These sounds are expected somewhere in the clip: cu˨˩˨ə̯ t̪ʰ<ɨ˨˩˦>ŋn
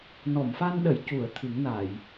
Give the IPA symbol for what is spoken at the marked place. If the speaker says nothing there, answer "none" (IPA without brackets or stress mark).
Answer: ɨ˨˩˦